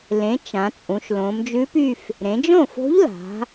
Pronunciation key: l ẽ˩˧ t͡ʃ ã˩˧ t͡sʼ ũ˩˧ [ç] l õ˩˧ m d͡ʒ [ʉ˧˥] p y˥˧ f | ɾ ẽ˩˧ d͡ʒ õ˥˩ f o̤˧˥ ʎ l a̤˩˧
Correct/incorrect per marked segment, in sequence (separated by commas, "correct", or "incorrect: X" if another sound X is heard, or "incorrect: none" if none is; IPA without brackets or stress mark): incorrect: ʃ, correct